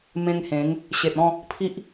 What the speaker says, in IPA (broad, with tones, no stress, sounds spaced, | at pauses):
m ẽ˧ ŋ h ẽ˨˦ ŋ | ɕ e˨ t̚ ɔ̃˥˧ | pʰ i˦ ʔ